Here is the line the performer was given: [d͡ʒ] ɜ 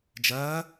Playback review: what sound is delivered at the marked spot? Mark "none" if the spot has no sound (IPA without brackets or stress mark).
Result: d͡ʒ